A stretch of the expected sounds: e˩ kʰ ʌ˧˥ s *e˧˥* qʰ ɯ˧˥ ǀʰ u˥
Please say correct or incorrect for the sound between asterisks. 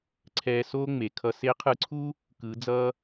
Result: correct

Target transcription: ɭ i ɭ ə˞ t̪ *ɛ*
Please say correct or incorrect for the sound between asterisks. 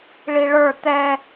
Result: correct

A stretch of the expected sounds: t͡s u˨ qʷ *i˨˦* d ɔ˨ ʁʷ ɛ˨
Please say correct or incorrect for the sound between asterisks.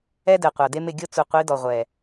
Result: correct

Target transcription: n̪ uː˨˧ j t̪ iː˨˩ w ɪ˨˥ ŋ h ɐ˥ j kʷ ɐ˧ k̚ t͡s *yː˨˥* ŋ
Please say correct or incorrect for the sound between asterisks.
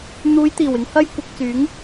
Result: correct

